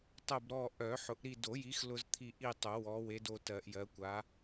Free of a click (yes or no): yes